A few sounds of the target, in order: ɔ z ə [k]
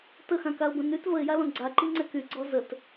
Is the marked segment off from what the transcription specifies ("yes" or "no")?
yes